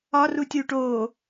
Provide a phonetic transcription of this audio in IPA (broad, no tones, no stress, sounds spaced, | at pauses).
ɒ r u tʲ uː ʈ oː